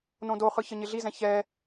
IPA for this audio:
nõdoχɯ çəɲɪɮizɛ̃ çɛ

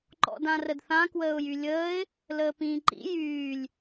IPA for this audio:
ǃɔ̰dãrədθã kwəːʊ̯jylʲəːɪ̯ | ləːpĩːǃḭ jyːlʲ

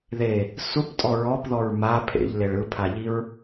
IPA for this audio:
ðe | suptʼɔ ɹɔpðɔɹ ma pʰḛʎleɭ ɯpʰaʎiɹ

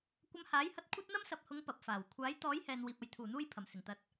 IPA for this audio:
kʷɐ˧mhaː˨˥jhɐ˧t̚ kʷʰɐ˥t̚n̪ɐ˥m sɐ˨p̚hʊ˨˧ŋ pɐ˨p̚faː˨˩w kʷʰaː˨˥jt̪ɔː˨˥jhɛː˨n wiː˧p̚ɐ˨˧j t̪ʰuː˨˩n̪uː˧j pʰɐ˨˩msɪ˨˩ŋt̪ɐ˨t̚

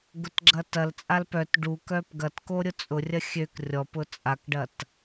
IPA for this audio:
ɡʊtɡ͡ǁɐtɐlt͡sʼal pœt ɖuk œpɡɐtko ɾʲʊt͡sʼʊrʲɐ xʲøk rʲɔpʊ t͡sʼakɖɐt

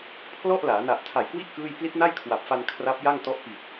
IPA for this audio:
pʰlɔ˥˩ʔlaː˩˦ na˨˩ʔ tʰa˨˩jkwi˦˥ʔ kɯː˥˩j pli˦˥t̚na˥˩jkʰwa˨˩p̚fa˧n kʰra˦˥p̚ja˥˩ŋtɔ˦˥ʔ pi˨˩t̚

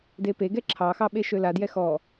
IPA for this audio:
depeɡɛ ǁʰɑxɑ ɓeʃøladjɛ xɔ

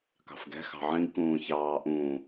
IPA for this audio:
kɑ̤fɡɛ̤ xɑ̤ʕĩɡ kũːçɑː ʔũː

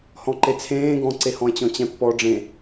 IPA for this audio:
hɔ̃ǃet͡sʰẽː ɡɔ̃ǀehɔ̃e̯ t͡ɕɔ̃t͡ɕɛ̃pːɔ ɖ͡ʐẽ

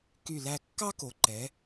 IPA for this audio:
ky˧˩læ˧ kːɑ˥ko˩˧ǃɛ˩˧

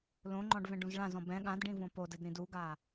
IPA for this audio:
lõŋ͡ǃɔ̃ɖvɛ̃ɖũz ɭãzɔ̃ bɛ̃ ɠãdɖĩvõ podɘdɾĩd uɡa

